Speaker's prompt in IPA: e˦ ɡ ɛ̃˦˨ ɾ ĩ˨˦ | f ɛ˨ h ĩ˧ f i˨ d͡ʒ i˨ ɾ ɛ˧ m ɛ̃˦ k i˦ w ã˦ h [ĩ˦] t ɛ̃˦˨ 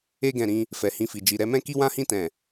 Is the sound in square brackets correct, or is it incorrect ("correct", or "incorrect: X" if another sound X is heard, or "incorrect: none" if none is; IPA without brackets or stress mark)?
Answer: correct